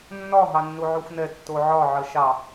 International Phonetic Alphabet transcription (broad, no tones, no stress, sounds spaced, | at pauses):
nː ɒ ɦ ɑ nː u ʕ u xʷ n ɛ tː o ʕ ɒ ʕ ə ʃ ɑ